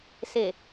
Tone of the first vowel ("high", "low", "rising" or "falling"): low